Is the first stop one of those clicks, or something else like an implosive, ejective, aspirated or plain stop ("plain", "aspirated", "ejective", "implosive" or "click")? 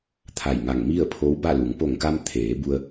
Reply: aspirated